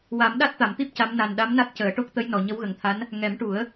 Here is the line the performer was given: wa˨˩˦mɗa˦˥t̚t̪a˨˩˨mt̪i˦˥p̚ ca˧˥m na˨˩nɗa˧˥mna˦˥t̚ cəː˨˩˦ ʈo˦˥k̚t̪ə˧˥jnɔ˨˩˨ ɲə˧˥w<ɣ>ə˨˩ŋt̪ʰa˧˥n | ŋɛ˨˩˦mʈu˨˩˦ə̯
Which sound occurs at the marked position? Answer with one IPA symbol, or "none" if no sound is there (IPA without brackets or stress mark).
ɣ